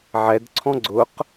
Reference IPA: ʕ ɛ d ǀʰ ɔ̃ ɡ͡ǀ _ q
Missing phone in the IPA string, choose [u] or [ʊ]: ʊ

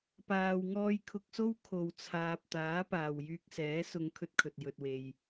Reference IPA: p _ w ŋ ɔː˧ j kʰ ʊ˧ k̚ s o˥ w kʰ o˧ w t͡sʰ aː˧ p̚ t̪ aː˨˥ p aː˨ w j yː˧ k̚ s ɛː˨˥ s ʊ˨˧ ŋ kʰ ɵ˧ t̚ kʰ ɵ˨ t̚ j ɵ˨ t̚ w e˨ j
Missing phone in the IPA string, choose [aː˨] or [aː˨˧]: aː˨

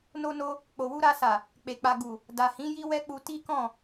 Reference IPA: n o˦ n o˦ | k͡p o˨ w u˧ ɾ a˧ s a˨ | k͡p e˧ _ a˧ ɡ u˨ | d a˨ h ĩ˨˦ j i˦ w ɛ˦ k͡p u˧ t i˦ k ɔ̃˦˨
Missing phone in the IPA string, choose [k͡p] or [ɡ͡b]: k͡p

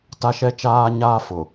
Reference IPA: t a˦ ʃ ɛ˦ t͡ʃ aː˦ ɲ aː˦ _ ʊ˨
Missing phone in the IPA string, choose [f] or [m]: f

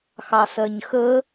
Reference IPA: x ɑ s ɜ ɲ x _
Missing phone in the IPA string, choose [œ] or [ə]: ə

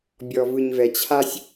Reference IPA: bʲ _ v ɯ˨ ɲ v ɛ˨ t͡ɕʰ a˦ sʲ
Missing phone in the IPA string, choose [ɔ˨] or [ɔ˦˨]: ɔ˨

